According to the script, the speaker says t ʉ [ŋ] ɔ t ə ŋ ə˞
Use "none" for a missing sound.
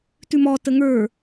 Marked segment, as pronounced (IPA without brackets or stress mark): m